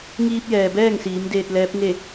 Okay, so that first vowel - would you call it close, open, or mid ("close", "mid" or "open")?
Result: close